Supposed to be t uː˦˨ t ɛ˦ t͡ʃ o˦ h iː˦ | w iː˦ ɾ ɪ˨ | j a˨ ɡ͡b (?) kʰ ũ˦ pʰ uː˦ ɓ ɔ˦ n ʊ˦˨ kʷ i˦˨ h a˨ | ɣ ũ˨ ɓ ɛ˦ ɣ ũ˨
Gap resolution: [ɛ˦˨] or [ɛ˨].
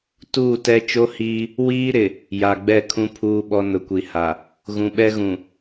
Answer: ɛ˦˨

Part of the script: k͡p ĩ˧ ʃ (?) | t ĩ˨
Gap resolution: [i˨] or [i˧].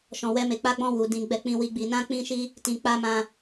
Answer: i˧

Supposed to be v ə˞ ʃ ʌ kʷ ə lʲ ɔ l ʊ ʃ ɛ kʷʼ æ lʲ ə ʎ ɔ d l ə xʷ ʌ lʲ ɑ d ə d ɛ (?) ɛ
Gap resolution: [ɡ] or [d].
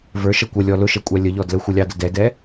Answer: d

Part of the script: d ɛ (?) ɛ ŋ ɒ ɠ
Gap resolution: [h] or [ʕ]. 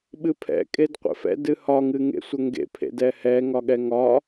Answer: h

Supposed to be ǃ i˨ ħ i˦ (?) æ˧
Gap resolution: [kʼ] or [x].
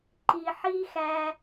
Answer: x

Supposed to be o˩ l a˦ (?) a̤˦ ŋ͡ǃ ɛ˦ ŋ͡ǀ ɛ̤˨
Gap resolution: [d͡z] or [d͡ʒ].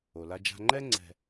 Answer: d͡ʒ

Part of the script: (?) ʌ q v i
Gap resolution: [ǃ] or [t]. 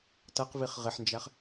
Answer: t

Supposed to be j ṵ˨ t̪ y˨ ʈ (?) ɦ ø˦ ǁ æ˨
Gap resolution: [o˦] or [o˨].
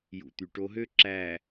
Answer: o˦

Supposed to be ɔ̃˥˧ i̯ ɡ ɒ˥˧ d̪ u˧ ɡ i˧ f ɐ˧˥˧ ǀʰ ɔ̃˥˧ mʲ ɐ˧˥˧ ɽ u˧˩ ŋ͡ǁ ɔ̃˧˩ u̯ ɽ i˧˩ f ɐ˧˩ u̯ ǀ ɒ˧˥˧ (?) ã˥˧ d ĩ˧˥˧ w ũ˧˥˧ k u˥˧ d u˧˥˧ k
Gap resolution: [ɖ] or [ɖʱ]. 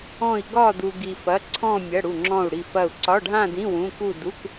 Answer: ɖʱ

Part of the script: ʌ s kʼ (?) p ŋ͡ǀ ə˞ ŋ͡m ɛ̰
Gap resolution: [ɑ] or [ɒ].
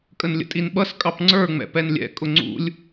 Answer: ɑ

